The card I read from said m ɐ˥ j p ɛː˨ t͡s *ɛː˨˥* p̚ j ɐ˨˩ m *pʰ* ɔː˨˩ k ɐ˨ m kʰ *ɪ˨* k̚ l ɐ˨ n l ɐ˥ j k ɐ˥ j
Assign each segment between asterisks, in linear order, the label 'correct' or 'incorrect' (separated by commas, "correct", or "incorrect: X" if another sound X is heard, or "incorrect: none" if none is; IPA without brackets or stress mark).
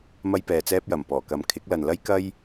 incorrect: ɛː˥, incorrect: p, incorrect: ɪ˨˥